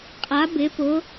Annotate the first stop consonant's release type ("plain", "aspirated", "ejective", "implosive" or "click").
ejective